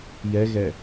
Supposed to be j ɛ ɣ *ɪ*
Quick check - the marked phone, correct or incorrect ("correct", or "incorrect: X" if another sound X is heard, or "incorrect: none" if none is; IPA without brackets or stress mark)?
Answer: incorrect: ɛ